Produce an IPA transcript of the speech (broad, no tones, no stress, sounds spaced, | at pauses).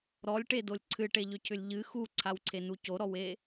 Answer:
ɾ ɔ lʲ ʈ e d o lʲ ǀʰ ɨ ʈ e ʎ ʏ cʰ ʏ lʲ ʎ ɨ x u ǀʰ a w ǀʰ e n u c o ɾ ɔ w e